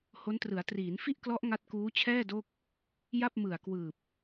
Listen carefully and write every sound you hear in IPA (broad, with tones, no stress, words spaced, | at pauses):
ho˦˥ntrɯ˩˦a̯ triː˩˦n fi˥˩ʔklɔ˦˥ʔ ŋa˦˥t̚kuː˦˥t͡ɕʰɛː˥˩ do˥˩k̚ | ja˥˩p̚mɯ˨˩a̯kwɯː˨˩p̚